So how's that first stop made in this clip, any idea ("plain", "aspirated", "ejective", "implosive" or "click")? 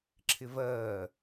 click